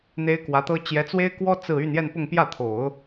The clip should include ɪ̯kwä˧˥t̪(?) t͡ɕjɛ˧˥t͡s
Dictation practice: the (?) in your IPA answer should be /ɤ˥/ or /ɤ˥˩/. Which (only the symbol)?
ɤ˥